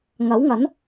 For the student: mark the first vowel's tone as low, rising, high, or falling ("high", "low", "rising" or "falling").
rising